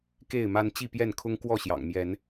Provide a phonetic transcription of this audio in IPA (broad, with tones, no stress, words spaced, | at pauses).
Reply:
ke˥˨ɪ̯ma˦n t͡ɕi˥˨pjɛ˥˨nkʰʊ˦ŋ kwɔ˥˨ɕjɑ̰˨˩ŋmjɛ˨˦n